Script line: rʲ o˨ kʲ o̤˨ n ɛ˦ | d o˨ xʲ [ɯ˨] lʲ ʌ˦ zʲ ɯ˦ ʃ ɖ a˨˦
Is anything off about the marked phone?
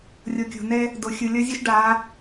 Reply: no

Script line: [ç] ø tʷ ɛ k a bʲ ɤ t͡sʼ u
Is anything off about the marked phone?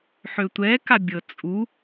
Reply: yes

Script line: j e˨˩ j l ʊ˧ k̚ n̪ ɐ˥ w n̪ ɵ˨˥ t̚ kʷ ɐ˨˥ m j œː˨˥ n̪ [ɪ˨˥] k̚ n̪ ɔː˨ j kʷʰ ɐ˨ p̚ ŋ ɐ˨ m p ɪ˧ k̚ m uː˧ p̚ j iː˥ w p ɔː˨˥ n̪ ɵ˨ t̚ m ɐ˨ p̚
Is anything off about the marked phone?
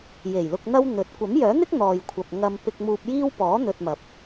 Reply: yes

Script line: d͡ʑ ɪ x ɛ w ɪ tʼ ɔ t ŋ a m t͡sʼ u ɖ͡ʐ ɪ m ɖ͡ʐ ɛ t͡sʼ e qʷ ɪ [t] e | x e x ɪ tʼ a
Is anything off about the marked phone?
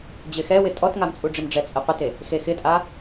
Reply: no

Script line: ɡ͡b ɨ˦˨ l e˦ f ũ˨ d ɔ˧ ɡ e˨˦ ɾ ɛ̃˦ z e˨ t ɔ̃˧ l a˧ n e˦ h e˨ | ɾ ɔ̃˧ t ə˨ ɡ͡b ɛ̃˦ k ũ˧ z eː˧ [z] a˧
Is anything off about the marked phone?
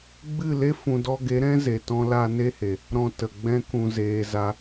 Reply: no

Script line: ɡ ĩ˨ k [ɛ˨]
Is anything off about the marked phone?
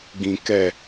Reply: no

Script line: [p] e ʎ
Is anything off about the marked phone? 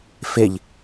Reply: yes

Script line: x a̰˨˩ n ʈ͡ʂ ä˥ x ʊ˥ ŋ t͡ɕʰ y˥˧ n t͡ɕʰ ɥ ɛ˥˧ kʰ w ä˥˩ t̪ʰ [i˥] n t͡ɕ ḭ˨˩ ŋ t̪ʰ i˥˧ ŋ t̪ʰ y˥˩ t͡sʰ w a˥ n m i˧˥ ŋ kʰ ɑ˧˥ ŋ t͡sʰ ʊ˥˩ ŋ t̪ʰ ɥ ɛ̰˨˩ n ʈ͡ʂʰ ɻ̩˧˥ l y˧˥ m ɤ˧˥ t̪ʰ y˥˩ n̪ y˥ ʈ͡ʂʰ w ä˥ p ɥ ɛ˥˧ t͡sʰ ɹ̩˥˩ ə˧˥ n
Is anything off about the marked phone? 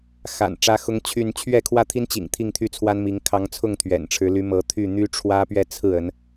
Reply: no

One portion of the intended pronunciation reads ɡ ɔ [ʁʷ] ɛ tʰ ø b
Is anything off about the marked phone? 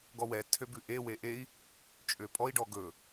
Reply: yes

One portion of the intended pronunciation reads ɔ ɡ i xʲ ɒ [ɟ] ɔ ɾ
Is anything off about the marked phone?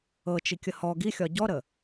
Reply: no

